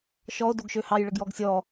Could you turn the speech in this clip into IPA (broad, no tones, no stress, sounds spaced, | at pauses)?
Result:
ʃ ɔ o̯ d o ɡ ʃ ø h ɑ j ɭ ə ɡ j ɔ ɡ sʲ ɔ